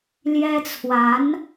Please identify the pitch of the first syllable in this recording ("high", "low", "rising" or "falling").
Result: high